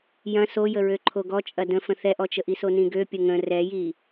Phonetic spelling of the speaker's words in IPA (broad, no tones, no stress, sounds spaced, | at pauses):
j ɐ̃ s o j ə ɹ ø ǃʰ o ɡ ɔ t͡ʃʼ ɐ d ə̃ f ə̃ θ ɛ ʔ ɔ t͡ʃ ə ʔ i s o n ĩ ɡ ø pʲ ə ŋ ə̃ r ɛ j i